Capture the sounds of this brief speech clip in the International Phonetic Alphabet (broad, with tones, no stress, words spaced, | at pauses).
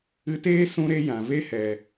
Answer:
ɨ˧ teː˦ sũ˦ɾe˦jã˨ ve˦hɛ˨